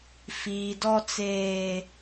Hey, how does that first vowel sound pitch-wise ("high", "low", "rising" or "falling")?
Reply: low